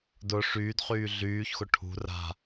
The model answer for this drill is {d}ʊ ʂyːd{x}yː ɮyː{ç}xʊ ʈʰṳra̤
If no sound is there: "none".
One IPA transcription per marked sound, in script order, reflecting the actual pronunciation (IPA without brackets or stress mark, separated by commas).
d, χ, ç